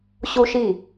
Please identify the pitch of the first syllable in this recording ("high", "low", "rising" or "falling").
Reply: high